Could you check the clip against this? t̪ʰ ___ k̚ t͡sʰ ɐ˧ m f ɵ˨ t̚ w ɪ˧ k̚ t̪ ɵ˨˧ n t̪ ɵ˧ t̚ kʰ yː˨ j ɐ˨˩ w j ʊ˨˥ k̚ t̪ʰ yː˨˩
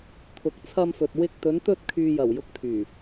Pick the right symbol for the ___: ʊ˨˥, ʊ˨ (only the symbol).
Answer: ʊ˨